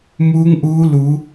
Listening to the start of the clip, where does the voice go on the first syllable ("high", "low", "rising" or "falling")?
rising